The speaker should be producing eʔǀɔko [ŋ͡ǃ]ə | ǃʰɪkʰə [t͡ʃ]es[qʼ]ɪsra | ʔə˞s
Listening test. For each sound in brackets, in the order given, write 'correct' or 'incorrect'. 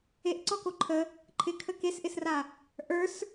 incorrect, incorrect, incorrect

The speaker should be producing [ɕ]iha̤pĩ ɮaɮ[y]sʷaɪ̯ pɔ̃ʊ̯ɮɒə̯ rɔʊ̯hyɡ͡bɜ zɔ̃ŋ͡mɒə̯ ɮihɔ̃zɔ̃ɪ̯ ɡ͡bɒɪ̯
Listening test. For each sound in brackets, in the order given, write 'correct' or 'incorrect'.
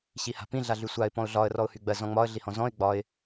correct, correct

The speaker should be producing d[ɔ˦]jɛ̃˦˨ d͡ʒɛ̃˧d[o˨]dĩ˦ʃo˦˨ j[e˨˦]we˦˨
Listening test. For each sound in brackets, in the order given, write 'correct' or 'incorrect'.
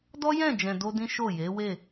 correct, incorrect, correct

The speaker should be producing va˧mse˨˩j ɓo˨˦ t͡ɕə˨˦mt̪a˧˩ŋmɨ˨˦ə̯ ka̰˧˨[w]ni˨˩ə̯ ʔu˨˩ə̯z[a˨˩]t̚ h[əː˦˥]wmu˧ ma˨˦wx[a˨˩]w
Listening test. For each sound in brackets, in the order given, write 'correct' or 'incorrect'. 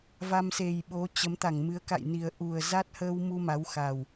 incorrect, incorrect, incorrect, correct

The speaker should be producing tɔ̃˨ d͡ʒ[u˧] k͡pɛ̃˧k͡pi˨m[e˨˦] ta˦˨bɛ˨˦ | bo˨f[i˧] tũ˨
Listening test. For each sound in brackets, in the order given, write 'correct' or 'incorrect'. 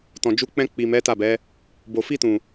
incorrect, incorrect, correct

